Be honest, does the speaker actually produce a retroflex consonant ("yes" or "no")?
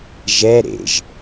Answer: no